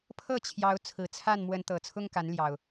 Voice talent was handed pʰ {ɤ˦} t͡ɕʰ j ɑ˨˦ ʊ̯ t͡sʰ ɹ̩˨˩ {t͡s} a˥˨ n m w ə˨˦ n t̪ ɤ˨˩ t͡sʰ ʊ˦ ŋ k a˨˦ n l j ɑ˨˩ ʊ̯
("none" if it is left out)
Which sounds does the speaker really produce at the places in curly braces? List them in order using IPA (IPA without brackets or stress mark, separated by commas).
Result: ɤ˥˨, t͡sʰ